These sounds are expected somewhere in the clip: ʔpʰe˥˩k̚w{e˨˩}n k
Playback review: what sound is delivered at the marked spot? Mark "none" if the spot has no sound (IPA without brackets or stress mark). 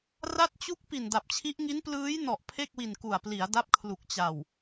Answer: i˨˩